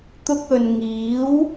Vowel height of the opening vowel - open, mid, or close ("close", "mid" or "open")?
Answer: close